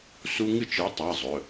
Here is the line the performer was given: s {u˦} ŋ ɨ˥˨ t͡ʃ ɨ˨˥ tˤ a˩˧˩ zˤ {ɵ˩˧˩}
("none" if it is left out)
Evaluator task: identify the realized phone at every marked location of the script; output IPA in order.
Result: u˦, ɵ˩˧˩

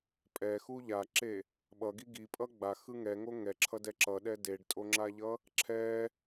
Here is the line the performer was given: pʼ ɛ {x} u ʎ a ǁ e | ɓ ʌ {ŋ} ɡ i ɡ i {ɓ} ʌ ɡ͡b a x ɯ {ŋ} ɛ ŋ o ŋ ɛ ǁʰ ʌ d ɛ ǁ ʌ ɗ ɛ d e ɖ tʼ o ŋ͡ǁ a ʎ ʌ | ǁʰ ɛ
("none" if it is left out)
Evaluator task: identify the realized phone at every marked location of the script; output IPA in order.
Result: x, none, pʼ, ŋ

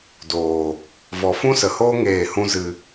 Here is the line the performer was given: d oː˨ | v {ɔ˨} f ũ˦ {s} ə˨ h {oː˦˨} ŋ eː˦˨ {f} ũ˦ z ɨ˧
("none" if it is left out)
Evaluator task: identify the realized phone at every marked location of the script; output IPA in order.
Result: ɔ˨, s, oː˦, h

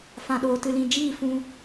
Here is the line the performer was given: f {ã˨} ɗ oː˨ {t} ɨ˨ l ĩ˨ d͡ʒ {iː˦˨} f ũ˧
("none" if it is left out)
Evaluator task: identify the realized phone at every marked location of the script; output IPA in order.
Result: ã˨, t, iː˦˨

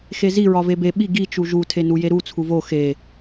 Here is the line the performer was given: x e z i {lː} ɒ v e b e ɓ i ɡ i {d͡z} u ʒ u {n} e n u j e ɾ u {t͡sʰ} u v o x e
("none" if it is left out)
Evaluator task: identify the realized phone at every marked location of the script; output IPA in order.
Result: ɹ, t͡ʃ, tʰ, t͡sʰ

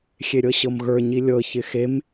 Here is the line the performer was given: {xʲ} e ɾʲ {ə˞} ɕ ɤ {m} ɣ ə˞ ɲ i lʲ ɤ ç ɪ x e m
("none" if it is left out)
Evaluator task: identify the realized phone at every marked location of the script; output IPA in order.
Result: xʲ, ɤ, m

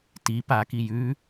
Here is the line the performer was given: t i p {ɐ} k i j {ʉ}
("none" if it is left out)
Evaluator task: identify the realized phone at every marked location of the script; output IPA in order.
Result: a, ʉ

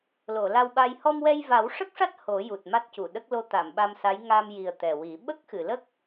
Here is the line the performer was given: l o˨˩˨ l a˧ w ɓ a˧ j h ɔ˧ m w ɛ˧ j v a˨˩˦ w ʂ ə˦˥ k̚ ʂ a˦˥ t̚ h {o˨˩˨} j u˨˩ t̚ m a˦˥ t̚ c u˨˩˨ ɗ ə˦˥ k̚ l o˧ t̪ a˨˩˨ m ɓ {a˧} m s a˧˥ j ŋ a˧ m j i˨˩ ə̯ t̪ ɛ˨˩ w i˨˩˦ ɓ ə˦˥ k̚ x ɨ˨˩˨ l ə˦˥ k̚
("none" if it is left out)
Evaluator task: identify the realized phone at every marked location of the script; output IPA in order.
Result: o˨˩˦, a˧

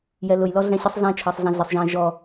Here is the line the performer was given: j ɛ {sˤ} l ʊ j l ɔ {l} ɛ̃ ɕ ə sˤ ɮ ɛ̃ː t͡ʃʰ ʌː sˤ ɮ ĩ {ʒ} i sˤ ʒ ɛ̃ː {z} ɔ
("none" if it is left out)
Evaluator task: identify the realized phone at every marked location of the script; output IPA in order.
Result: none, ɮ, ɮ, ʒ

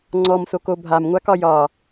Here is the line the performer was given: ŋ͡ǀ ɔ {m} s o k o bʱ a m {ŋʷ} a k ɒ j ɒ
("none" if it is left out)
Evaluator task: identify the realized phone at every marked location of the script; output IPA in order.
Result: m, ŋʷ

